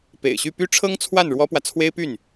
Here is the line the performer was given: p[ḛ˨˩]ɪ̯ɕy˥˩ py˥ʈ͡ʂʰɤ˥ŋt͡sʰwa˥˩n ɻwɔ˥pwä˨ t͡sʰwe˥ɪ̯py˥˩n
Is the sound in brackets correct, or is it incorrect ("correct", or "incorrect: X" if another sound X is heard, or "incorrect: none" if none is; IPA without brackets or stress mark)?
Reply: correct